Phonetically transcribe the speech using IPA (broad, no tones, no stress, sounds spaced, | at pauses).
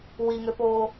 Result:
w i ŋ ø p oː